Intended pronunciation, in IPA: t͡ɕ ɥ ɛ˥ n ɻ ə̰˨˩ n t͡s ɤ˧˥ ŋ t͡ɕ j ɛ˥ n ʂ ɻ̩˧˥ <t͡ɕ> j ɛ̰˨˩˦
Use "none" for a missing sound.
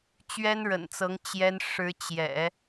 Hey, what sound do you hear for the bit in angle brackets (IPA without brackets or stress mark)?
t͡ɕ